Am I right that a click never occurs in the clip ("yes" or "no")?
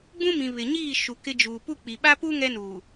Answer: yes